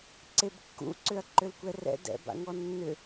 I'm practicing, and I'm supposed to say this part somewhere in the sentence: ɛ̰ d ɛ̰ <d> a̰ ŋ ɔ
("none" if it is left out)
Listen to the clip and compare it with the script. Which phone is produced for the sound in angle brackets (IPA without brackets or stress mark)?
b